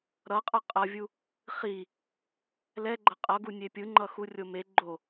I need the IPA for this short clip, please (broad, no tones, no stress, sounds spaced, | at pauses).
ɾ ʌ qʼ ʌ qʼ ʌ vʲ u | χ i | l ɛ ɡ͡ǃ ʌ qʼ ʌ ɡ u nʲ e pʲ ɯ ŋ͡ǃ ʌ x u rʲ o m e ɡ͡ǃ o